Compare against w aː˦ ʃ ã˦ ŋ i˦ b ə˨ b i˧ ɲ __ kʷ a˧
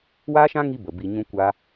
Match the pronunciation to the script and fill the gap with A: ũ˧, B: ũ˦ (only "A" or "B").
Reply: A